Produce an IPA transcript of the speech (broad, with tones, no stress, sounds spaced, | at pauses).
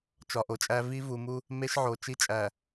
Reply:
t͡ʃ ɒ˨ ʔ o˨ t͡ʃʼ æ˦ v i˦ v u˨ m u˦ | m e˦ ʃ ʕ o˨ t͡ʃ i˦ t͡ʃʼ æ˨